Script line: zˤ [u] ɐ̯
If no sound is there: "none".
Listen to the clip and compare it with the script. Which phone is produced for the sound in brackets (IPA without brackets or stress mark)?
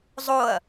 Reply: o